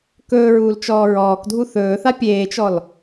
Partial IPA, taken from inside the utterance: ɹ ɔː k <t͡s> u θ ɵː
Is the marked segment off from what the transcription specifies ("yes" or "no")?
yes